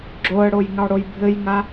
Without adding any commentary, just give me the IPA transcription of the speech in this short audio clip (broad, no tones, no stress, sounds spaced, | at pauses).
ɡ͡ǁ o ə̯ ɽ o j ŋ ɑ ɽ o j bʱ ɘ j ŋ a